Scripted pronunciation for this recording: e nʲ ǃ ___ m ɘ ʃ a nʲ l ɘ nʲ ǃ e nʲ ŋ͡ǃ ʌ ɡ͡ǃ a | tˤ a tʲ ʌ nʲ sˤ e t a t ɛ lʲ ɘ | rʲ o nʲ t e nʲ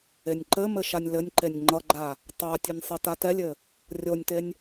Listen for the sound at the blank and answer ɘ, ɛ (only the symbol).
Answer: ɘ